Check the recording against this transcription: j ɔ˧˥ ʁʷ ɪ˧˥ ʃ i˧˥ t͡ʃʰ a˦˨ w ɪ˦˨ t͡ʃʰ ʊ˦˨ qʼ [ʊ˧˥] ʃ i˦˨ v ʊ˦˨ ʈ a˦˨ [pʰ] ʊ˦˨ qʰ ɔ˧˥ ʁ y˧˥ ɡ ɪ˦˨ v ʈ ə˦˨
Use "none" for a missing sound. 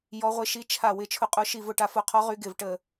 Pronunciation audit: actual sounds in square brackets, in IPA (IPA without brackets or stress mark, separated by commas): ʊ˧˥, f